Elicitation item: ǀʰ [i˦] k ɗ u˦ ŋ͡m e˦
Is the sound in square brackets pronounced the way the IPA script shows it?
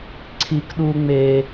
yes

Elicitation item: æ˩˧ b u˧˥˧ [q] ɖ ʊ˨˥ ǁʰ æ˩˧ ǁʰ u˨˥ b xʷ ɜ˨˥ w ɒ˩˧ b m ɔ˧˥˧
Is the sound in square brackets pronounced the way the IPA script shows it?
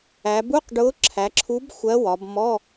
yes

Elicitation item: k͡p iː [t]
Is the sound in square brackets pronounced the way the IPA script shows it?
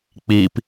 no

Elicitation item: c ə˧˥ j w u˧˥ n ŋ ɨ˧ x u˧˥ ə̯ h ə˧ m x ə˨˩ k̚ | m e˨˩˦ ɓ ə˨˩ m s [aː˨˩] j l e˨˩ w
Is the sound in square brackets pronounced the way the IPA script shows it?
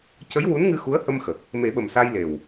no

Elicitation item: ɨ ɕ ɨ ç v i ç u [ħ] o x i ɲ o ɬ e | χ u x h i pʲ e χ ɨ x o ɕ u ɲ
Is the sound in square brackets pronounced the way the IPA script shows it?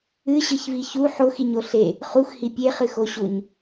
yes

